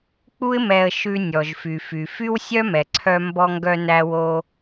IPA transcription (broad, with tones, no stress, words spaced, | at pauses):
k͡pu˥ɪ̯mɛ˧ə̯ ʃʉ˧ nʲɔ˩ʒfy˩fy˩ fy˥wsʲœ˥ mɛ˩ǀʰœ˧mbɔ˧ŋɡœ˧ næ˧wo˧